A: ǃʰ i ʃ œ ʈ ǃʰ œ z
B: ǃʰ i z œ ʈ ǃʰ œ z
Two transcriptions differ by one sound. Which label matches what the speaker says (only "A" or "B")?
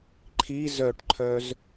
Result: B